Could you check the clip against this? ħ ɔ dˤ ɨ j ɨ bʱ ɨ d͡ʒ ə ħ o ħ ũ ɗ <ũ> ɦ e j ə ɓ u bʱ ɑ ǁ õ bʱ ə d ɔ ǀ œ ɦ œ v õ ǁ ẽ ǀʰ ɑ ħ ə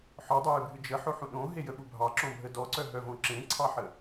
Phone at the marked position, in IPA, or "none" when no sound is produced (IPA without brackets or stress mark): õ